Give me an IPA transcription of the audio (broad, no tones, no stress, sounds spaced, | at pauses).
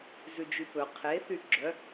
z ʉ d͡ʒ y p ɵ qʰ e θ y ɡ͡ǁ œ